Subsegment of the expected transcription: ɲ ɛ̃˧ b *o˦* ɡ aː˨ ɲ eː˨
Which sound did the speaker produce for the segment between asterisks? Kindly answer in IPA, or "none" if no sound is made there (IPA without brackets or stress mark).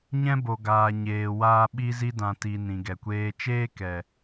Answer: o˨